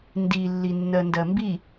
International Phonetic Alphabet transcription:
n d i lː i nː ɜ n d ɜ m b i

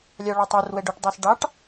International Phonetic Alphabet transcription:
lʲ ɑ ɭ ɔ tˤ ɛ r w ɛ ɖ o ʈ dˤ ɑ s ɖ ɑ ʈ

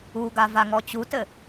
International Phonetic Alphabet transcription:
u ɡ a v a ŋ ɔ t͡ɕ u t ɘ

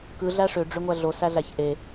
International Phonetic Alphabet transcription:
k ɯ ɮ æ ʂ ø ɖ͡ʐ ø ŋʷ æ ɮ o s æ ɮ æ ç ʔ e

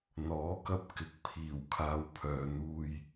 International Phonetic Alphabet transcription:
n̪ ɔː˨˥ k ɐ˧ p̚ k ɪ˨ k̚ pʰ iː˨˩ w kʰ aː˨ w pʰ œː˨ n̪ uː˧ j

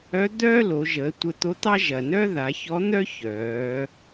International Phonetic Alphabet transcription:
œ˧˥ d̪ œː˥ l o˩˧ ʒ əː˩˧ tʷ ə˧ t̪ o˧˥ t̪ ɑ˥ ʒ ɐ˩ n œ˥ ð a˩˧ ç ɔ˧˥ n̪ œ˥ ç œː˩˧

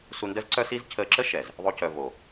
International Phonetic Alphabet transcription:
s u˧ n d ə˦ z ǀ œ˦ s i˦ z cʰ əː˧ ǁ ə˦ ʃ ɛ˨ z | ðˤ o˧ c œ˨ v o˨

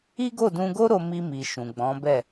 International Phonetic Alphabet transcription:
i˦ ɡ o˦˨ d ũ˧ ɡ o˦ ɾ o˧ m i˧ m i˨ ʃ ũ˨ ɡ͡b ɔ̃˨˦ b ɛ˦˨

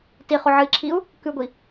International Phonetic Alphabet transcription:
t i χ o ʕ ɨ i̯ ǁʰ i u̯ | k ʉ ɡʷ i

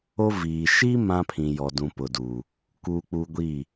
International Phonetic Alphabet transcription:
o˦ v iː˨ ʃ i˦ m ã˦ pʰ ĩ˨ j ɔ˨ d ũ˨ p ʊ˨ d uː˨ | k uː˦ k͡p u˦ ɡʷ iː˦˨

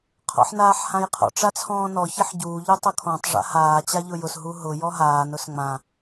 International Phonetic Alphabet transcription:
qʰ ɔ̰ ħ n aː ħ h ã j qʰ ɔ̰ ʈ͡ʂ a t͡sʰ ɔ̃ː n ɔ ç ɪ ħ ɟ uː ʎ u tˤ ʊ kʰ ɔ̃ tˤ ʐ a̰ h aː t͡ɕ a ʎ ʊ j ʊ s ɦ u ɦ ʊ j ɔ ɦ aː n ʊ s ŋ͡m ã

